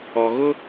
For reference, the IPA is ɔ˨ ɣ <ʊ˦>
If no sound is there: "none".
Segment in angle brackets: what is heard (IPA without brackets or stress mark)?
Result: ʊ˦